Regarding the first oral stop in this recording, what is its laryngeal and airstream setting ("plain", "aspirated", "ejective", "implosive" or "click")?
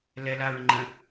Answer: click